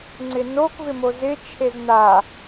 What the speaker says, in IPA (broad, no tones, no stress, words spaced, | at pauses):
ŋ͡ǀɪnok vɪmozɪ t͡ʃʰezna